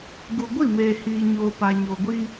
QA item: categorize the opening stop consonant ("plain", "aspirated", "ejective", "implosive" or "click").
plain